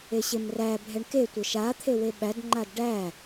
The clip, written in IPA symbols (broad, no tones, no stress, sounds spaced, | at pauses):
e ɕ e m r æ bʱ ɛ ɳ k e tʷ ə ʃ a t̪ʰ e w e ɓ æ d ŋ͡ǃ a d ɖ æ